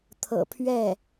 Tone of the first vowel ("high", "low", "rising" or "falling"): low